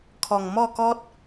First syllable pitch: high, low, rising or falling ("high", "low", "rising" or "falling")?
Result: low